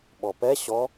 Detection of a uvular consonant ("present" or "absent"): absent